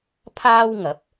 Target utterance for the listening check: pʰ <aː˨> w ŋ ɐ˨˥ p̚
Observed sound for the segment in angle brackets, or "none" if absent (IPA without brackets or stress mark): aː˥